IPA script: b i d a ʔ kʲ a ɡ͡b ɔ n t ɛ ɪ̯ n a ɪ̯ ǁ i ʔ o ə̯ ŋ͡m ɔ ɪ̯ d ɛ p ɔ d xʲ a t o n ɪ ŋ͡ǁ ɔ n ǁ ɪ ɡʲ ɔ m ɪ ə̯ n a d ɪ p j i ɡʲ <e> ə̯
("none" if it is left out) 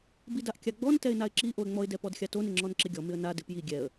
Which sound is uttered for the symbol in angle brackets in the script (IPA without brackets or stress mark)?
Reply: ɛ